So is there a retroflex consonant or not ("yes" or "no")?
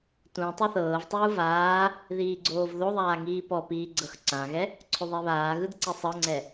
no